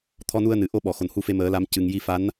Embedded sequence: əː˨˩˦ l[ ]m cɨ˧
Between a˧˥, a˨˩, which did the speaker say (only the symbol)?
a˧˥